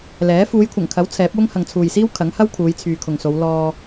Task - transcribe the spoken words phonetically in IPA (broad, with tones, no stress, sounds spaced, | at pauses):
l ɛː˨˥ f uː˨˧ j kʷʰ ɐ˨˩ ŋ kʰ ɐ˨˥ w t͡sʰ ɛː˨˥ p̚ w ʊ˥ ŋ h ɐ˨ ŋ t͡sʰ uː˨ j s iː˥ w kʰ ɐ˨˥ ŋ h ɐ˥ w kʰ uː˨˧ j t͡sʰ yː˨ kʰ ʊ˨ ŋ s o˨˧ w l ɔː˧